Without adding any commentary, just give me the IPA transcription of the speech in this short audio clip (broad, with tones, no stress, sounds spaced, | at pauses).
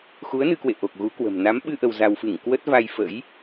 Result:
x u˨˦ ə̯ n ɨ˧ k w ḛ˧˨ ʔ o˨˩ k̚ ɣ u˨˦ k w ə̤˨˩ m n a˨˦ m ɓ ɨ˧ ʔ ə˧ w z a˧ w f ɨ˧˩ ŋ k w ə˦˥ t̚ v a˧ j f ə̰˧˥ j